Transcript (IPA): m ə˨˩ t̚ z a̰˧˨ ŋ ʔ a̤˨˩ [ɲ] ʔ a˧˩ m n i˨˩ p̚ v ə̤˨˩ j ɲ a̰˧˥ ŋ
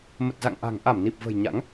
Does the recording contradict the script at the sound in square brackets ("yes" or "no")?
yes